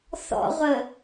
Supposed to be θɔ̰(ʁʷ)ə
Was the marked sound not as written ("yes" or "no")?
no